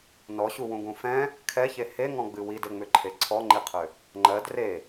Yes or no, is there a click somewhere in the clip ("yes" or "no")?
yes